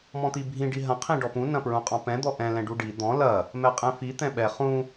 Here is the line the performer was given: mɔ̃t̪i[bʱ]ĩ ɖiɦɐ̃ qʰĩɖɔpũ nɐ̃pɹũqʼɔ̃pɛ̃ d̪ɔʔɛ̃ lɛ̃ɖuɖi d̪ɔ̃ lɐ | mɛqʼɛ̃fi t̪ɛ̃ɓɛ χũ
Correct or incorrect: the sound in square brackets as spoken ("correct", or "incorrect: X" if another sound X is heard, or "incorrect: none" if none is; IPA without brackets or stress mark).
correct